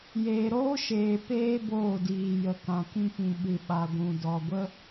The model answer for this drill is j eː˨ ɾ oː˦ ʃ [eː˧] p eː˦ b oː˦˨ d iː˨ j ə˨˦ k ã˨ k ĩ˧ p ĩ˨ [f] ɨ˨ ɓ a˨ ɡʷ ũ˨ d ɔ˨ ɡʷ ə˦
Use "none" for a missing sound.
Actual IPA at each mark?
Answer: eː˨, ɓ

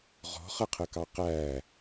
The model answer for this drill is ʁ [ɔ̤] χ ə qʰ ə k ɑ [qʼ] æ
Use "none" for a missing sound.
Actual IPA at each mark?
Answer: ɔ̤, q

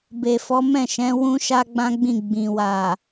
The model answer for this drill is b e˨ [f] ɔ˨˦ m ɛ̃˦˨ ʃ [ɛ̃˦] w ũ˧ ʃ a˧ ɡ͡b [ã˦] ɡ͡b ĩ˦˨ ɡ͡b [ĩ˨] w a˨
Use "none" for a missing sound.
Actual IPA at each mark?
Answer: f, ɛ̃˨˦, ã˦, ĩ˨

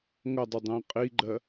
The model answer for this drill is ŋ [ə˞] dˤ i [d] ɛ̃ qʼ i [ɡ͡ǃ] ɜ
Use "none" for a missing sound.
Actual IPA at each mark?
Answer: ʌ, dˤ, ɡ͡ǃ

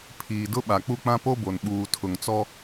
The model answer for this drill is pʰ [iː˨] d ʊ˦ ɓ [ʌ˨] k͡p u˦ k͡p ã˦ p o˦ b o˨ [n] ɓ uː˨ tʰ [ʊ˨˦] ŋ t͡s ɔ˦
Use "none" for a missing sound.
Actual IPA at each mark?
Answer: iː˨, a˨, n, ʊ˨

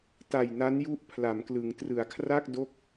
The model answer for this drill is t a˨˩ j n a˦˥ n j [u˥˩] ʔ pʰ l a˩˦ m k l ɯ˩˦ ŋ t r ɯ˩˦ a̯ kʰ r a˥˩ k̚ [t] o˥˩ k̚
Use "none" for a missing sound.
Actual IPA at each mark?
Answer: u˦˥, d

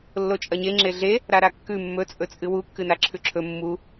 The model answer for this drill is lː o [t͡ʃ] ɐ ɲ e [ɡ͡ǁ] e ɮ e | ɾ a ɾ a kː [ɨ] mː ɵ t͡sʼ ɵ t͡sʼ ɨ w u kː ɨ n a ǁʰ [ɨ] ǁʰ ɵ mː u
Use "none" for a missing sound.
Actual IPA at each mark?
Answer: t͡ʃʼ, ŋ͡ǁ, ʉ, ʉ

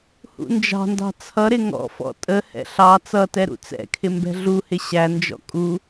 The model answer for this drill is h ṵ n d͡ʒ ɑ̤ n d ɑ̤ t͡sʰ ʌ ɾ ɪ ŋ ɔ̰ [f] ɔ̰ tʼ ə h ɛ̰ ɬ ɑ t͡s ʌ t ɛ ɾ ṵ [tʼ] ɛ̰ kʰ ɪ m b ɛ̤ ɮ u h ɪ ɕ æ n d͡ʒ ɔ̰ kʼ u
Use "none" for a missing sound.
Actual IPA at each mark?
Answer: f, t͡s

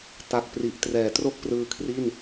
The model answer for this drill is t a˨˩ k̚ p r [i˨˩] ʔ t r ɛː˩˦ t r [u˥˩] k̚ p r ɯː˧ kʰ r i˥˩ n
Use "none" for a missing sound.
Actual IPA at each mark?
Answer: i˨˩, o˥˩

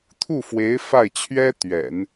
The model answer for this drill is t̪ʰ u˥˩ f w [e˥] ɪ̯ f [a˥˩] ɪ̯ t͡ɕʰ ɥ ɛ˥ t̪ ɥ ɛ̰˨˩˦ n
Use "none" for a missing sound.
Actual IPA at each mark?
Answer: e˧˥, a˥˩

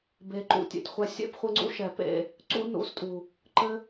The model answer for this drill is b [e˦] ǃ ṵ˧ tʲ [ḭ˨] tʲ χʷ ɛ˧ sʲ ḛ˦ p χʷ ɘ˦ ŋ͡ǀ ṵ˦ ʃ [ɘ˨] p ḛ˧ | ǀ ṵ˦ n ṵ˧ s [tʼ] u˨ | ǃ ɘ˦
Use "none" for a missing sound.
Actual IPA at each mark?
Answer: e˨, ḛ˨, ɛ˨, tʼ

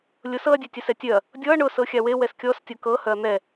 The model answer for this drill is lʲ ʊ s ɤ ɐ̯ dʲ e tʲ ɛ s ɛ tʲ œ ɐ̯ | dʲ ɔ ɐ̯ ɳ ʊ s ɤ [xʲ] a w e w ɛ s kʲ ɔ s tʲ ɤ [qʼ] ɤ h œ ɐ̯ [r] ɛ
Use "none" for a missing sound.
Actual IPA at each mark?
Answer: xʲ, k, n̪

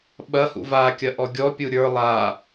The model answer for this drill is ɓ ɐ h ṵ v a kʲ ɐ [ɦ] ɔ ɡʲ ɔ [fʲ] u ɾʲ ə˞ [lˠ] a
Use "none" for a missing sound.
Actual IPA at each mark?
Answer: ʔ, pʲ, lˠ

